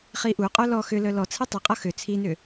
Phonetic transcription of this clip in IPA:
χ i ʔ u qʼ œ l ɔ x ʏ l œ l ɔ t͡sʰ i tˤ ʏ qʼ ʌ x ʏ t͡sʰ i n ʏ

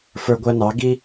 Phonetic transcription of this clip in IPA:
f ə˞˦ ɡʷ æ˦ n ɑ˨˦ ɡ i˦

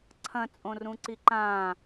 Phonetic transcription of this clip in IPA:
ǀʰ ɐ̃ t͡sʼ õ r ũ ǀ i ǃ ãː

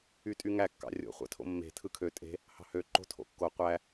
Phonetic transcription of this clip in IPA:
y tʼ y ŋ æ kː ɑ̰ rʲ o̰ χʷ æ̰ tʰ o̰ mː e̤ tʰ ɯ kʰ ø tʼ e̤ | h ɑ̤ h ø ǃ o̤ tʰ o̰ kː o qʷ æ

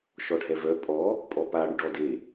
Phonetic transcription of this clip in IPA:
ʃ ɔ ɖʱ ɛ v œ pʼ ɔ | pʼ ɔ p a ɽ y ɖ ɔ d e

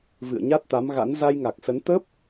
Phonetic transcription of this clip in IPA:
v ɨ̰˧˨ ə̯ ɲ a˦˥ t̚ t̪ a˨˦ m ɣ a̰˧˥ n z a˧ j ŋ a˨˩ k̚ s ə˨˦ n t̪ ə˦˥ p̚

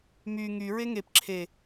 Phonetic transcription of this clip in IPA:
m y ŋ y ɹ e ŋ e p ǁʰ e

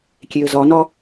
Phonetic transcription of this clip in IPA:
kʲ e ə̯ z ɒ n ɒ

